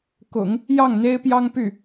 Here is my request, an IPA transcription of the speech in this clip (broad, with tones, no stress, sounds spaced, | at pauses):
k ʊ̰˨˩˦ ŋ | j ɑ˥˩ ŋ n̪ e˥ ɪ̯ p j ɑ˥ ŋ p y˥˩